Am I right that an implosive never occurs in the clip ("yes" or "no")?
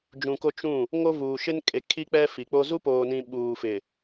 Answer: no